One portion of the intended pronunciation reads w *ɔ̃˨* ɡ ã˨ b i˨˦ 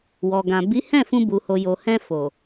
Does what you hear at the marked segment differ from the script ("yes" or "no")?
yes